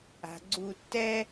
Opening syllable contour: low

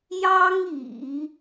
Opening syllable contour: high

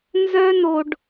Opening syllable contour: high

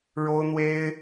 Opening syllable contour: high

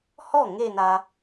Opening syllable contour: falling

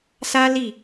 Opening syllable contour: high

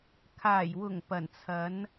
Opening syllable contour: low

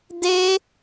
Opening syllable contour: high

